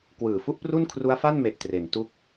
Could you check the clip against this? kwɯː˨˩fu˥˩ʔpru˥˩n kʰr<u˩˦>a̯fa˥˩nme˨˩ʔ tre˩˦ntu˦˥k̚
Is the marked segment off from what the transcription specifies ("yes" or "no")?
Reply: yes